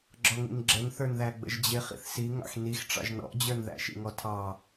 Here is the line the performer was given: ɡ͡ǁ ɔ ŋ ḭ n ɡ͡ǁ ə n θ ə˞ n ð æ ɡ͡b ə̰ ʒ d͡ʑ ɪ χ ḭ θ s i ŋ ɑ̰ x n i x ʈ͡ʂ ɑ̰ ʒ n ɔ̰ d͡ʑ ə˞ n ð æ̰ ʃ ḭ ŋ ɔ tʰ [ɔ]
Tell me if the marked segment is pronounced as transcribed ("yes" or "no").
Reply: no